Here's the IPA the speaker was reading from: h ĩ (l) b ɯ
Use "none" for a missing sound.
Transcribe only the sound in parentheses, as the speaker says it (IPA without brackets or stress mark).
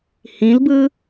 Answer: l